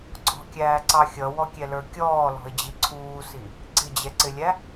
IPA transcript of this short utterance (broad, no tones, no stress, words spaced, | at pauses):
ɡ͡ǀɔ̤kʲæːǀɑ xʲʌwɔkʲɛlə˞ kʲɔːlɔ̤ɪ̯d͡ʑi ǀʰuːsi | ɡ͡ǀɪd͡ʑɛǀɪlʲæ